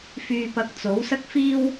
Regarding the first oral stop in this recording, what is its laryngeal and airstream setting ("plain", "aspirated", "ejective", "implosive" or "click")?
plain